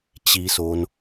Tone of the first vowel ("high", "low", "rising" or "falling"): low